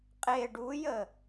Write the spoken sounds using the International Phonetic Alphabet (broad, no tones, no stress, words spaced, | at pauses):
qʼe ɖujə